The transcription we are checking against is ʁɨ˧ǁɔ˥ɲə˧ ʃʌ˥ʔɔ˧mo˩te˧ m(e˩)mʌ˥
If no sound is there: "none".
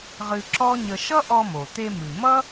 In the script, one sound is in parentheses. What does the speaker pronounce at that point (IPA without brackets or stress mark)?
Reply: ɨ˩